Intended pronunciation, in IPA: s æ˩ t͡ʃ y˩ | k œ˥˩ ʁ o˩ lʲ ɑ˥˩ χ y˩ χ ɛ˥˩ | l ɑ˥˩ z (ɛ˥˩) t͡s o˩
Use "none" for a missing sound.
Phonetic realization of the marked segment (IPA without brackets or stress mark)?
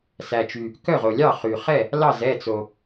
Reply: ɛ˥˩